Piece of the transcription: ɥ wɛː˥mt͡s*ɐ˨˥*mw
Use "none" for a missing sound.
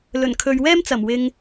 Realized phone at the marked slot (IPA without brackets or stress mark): ɐ˨˩